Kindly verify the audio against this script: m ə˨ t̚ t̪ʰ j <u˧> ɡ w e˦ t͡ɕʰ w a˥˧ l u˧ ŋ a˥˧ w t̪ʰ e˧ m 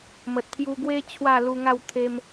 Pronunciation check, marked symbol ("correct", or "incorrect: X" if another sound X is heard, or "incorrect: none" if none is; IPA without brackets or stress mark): correct